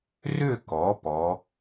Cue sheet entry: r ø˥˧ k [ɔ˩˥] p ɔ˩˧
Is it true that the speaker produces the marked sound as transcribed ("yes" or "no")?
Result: yes